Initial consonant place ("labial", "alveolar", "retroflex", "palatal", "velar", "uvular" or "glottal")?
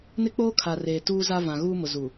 alveolar